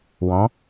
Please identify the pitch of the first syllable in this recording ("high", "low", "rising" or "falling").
rising